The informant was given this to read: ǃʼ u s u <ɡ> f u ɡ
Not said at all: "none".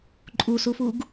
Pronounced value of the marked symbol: none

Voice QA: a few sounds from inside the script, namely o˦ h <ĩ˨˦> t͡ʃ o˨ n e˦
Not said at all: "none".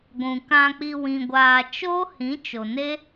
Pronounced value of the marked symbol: ĩ˨˦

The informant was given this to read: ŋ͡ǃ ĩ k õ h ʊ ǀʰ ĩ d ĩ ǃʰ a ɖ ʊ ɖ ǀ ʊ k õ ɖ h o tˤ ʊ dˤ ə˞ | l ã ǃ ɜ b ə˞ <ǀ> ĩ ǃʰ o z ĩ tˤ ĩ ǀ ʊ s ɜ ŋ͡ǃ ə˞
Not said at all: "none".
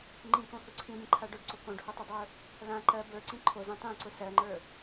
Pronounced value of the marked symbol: ǀ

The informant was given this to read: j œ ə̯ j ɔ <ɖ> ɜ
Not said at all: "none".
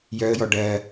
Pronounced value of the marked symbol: ɖ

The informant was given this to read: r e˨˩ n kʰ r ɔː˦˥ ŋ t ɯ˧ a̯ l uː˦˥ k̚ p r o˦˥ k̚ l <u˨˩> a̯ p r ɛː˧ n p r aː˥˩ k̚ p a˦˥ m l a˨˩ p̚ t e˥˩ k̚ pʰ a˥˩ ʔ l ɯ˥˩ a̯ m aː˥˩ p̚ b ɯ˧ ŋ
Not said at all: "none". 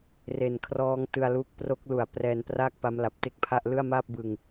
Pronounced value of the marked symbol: u˨˩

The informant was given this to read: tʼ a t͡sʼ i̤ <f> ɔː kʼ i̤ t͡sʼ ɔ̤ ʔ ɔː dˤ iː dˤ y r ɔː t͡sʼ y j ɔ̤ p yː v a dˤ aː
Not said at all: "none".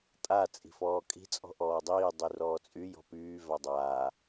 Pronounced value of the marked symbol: f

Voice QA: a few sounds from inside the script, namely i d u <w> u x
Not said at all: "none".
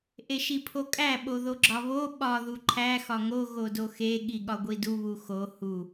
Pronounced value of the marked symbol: β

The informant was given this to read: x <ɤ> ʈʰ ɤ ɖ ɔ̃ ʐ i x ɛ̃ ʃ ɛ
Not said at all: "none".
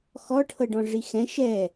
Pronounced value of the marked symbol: ɔ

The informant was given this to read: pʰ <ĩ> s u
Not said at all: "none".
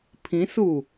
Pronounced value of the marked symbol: ĩ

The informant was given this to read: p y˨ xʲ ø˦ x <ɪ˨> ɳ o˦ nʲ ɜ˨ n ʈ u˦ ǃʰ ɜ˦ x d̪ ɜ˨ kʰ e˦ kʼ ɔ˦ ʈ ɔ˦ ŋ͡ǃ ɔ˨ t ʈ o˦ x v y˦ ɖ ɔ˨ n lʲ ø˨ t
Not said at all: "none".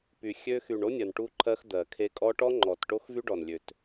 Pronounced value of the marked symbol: y˨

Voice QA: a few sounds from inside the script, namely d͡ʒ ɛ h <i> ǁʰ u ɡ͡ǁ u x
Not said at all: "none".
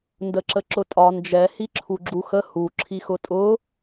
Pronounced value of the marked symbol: i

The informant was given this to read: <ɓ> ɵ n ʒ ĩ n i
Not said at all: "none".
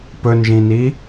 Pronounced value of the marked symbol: p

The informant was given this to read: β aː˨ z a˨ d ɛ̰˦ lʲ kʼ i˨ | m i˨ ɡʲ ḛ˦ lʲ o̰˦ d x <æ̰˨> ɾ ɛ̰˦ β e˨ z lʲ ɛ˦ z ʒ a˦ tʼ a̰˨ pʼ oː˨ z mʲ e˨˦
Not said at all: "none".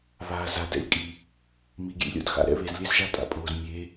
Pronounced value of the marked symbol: a̰˨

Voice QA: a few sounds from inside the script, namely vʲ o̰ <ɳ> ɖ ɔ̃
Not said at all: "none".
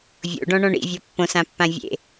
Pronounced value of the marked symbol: none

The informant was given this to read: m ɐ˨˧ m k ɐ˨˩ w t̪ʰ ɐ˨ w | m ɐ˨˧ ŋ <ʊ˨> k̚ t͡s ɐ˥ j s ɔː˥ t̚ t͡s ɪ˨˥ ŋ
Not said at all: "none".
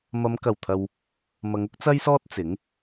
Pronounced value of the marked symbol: ʊ˥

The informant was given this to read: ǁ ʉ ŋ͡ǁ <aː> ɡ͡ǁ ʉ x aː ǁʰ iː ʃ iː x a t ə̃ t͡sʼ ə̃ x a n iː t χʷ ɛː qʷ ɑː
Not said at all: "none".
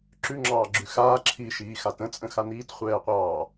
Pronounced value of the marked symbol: ɑː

